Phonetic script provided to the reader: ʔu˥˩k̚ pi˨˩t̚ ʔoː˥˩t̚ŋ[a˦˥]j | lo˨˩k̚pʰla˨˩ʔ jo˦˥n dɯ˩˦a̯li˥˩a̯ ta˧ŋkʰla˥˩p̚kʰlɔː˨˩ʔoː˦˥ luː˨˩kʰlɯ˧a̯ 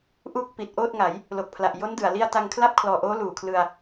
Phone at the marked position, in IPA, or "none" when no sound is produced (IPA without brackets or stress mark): a˩˦